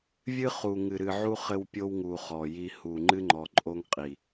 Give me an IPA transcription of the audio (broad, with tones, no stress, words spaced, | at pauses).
vʲɨ˦ χu˨ ŋɨ˨ɾɨ˨ʕu˦ χɘ˦wpʲo˦wŋu˨ χɔ˨ji˦hu˦˨ ŋ͡ǃɨ˦ŋ͡ǃɔ˨ǃʼo˦ŋqʼi˨